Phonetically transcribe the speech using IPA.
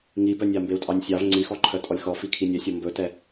ŋ i b œ nʲ ɑ m b e u̯ tʼ ɑ nʲ sʲ ɑ v ŋ͡ǀ i x ɔ ǃʰ œ tʼ ɔ lʲ x ɔ f i kʰ i nʲ ɛ sʲ ɔ m b ɵ t ɛ

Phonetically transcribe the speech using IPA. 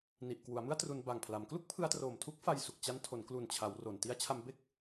n i˨˩ ʔ k w u˩˦ a̯ m ɯ˥˩ a̯ t r u˧ n b a˨˩ ŋ pʰ l a˩˦ m k l u˥˩ k̚ pʰ ɯ˧ a̯ t r oː˨˩ m tʰ u˦˥ k̚ f a˧ j s u˨˩ k̚ t͡ɕ a˦˥ n tʰ o˩˦ n k l u˨˩ n t͡ɕʰ a˩˦ w r o˨˩ n t i˦˥ a̯ t͡ɕʰ a˧ m b e˥˩ k̚

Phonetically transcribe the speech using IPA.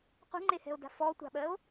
qʷ ɛ̤ ŋ͡ǃ e h ɛ̤ o̯ d a̤ f ɔ tʷ a̤ ɓ ɜ o̯

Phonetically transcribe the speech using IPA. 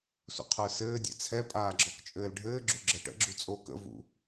s ṵ qʰ ə˞ s ɘː dʲ ɛ̰ t͡sʰ ɛ pʼ aː ɡ͡ǁ ɔ k t͡ʃʼ ɘː l ɖʱ ɘː ɡ͡ǁ u ɡ͡ǁ ɤ ʈ ə̰ ɡ͡ǁ u t͡sʼ o k ə̰ v ṵ

